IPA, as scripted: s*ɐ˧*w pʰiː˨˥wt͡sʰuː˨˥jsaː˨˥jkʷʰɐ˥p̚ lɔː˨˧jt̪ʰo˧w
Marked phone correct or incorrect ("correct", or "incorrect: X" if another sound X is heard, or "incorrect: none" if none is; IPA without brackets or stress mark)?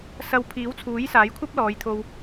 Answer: correct